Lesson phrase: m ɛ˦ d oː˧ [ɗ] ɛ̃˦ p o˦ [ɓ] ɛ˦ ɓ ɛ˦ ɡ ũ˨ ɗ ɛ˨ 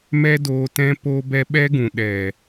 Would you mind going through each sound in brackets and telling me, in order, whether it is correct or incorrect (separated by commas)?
incorrect, incorrect